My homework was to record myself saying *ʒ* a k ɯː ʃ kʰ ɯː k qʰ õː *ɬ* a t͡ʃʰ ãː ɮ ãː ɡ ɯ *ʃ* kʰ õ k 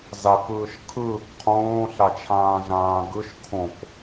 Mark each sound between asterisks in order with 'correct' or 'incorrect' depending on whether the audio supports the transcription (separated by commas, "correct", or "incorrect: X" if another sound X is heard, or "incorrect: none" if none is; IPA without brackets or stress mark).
incorrect: z, correct, correct